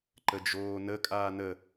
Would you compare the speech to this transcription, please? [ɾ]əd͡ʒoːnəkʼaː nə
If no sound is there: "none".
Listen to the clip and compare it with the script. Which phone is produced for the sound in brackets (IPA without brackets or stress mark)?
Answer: ǃ